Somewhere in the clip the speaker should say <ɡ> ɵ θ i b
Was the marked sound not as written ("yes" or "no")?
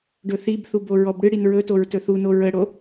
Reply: yes